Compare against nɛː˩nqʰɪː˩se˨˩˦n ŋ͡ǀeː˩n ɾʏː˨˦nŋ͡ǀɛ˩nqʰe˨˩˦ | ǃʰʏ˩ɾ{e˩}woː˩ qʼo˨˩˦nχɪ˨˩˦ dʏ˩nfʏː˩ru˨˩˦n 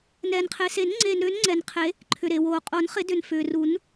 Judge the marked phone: correct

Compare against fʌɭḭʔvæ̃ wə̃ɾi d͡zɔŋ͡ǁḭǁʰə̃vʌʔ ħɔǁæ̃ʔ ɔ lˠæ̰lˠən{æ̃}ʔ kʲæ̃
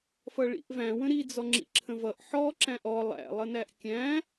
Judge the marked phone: incorrect: æ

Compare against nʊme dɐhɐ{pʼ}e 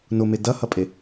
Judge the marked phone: correct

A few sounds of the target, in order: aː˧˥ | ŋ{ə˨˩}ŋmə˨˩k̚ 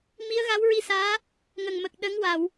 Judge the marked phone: correct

